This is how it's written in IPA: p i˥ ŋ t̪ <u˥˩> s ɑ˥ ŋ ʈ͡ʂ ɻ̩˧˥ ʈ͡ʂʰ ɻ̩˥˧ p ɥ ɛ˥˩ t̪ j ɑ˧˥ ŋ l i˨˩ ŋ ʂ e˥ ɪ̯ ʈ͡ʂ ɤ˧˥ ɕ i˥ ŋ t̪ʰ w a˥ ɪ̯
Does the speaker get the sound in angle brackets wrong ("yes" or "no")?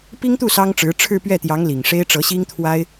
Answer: no